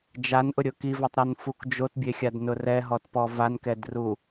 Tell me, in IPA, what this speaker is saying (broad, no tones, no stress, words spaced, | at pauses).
d͡ʒanʔʊɾʲʊ kivɛtˤɾonfuk d͡ʒotbʲexʲadnʊ rɛɦɔtpɔ vankɛdru